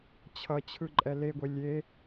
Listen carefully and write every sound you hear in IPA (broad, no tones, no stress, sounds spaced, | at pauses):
t͡ɕʰ ʌ t͡ɕʰ ɯ ǃʼ ɛ l e ɡʷ e lʲ e